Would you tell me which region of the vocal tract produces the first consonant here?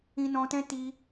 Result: tongue tip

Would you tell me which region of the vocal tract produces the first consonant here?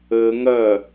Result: velum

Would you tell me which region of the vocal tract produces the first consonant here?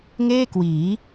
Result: velum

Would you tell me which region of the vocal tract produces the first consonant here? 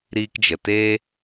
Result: tongue tip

